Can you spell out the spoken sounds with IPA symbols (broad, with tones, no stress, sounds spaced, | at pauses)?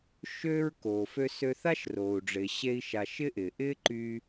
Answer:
ʃ øː˥ ɹ k oː˩ f ø˧ s ø˧ θ a˥ ʃ r oː˩ u̯ ɖ͡ʐ ɪː˩ ɕ e˥ i̯ ʃ a˧ ʃ ɪ˥ ʔ ɪː˩ ʔ ɪː˥ ǃ yː˧